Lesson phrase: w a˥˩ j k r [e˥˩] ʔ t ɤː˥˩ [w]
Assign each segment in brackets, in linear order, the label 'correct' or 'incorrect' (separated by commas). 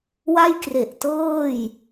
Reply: incorrect, incorrect